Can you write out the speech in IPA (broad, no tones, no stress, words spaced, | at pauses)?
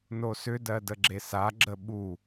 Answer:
nosʏdɜ dəɡ͡ǁesaɡ͡ǁə ɓu